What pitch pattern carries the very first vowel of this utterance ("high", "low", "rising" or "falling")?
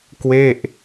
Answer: falling